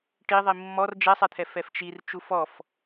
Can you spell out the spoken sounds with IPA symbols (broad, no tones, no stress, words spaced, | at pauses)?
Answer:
ʈiðˤi mːɔr d͡ʒɛsˤɛt̪ʰɛ fɛft͡ʃir t͡ʃufɔf